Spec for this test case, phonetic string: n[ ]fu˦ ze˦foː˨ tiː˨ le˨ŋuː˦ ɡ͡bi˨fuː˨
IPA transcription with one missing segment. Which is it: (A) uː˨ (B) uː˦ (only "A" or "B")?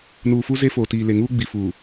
A